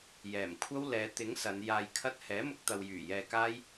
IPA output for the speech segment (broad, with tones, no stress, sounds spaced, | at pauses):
j ɛː˨˩ m kʷʰ ɐ˥ w l ɛː˨˧ t̪ ɪ˨˥ ŋ s ɐ˨˧ n j aː˧ j kʰ ɐ˥ t̚ h ɛː˨˥ m ʊ˧ k̚ t̪ ɐ˨ w j yː˨˩ j ɛː˧ k aː˥ j